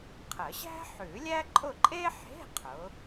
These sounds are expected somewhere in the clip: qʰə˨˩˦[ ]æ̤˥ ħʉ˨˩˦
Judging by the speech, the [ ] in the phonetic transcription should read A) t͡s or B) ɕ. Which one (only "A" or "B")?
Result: B